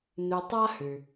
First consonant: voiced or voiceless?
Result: voiced